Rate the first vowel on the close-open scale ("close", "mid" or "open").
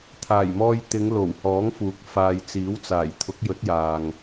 open